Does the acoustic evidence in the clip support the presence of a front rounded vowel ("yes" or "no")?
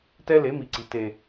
no